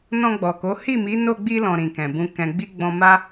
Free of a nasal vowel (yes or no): no